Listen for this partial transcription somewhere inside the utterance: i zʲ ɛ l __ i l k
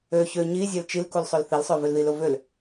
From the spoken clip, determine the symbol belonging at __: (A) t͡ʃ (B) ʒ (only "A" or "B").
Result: A